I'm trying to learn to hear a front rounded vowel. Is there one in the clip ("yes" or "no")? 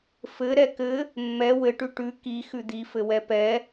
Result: no